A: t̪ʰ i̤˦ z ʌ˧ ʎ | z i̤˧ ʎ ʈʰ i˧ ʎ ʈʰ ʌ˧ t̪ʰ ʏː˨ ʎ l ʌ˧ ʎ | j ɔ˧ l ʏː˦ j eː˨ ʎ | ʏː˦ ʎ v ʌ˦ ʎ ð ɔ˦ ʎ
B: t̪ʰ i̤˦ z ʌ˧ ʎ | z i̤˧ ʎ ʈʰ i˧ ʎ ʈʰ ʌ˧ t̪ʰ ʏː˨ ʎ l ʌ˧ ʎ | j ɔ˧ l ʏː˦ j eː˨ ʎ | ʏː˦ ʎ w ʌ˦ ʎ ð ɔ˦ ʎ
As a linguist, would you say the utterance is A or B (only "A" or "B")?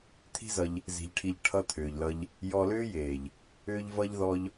A